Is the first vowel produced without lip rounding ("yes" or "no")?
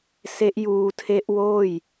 yes